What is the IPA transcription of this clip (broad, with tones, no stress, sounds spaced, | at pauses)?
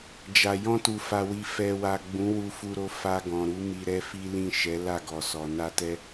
d͡ʒ a˨ j ɔ̃˧ t u˨ f a˨ w i˨ f ɛ˨ w a˨ ɡ͡b ũ˨˦ w u˧ f u˧ ɾ o˧ f a˧ ɡ ɔ̃˨ ɾ u˨˦ m i˧ ɾ ɛ˦ f i˦ l ĩ˦˨ ʃ ɛ˨˦ l a˦˨ ɡ ɔ˨ s ɔ˨ n a˧ t ɛ˦